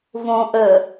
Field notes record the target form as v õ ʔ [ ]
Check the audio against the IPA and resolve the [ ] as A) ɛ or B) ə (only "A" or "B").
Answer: B